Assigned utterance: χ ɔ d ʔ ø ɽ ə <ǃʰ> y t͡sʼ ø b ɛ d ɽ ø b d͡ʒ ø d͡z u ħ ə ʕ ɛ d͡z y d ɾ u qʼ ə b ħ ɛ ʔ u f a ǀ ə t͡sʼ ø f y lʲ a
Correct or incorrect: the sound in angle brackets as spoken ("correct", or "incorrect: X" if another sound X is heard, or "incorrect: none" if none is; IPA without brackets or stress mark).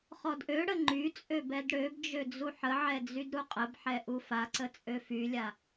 incorrect: ŋ͡ǃ